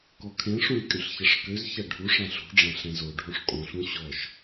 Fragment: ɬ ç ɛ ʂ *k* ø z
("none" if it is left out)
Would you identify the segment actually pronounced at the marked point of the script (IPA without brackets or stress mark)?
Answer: k